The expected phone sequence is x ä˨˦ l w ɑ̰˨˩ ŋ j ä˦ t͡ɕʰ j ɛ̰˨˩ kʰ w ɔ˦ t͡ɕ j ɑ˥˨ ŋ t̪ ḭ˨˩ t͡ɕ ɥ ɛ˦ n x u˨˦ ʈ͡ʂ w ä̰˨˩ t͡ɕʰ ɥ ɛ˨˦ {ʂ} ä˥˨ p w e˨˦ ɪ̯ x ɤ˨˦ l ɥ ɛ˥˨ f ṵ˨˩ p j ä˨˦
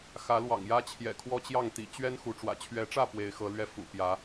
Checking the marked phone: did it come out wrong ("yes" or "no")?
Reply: yes